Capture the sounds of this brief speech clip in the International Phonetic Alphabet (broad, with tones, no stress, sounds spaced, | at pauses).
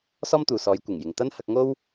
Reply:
s ɔː˥ m t̪ uː˨ s ɔː˨˧ j kʷ ɪ˨˩ ŋ j ɪ˨ ŋ t̪ ɐ˥ n h ɐ˧ k̚ ŋ o˥ w